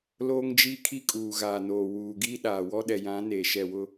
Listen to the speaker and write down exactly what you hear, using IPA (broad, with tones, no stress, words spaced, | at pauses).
loː˦ŋd͡ʒi˦ kʰi˦kʼuː˨ɣaː˨ noː˨ wuː˨ ɡiː˦ɗaː˨wɔ˦ ɗɛ˨jã˨˦ neː˨ʃɛ˦˨ wʊ˦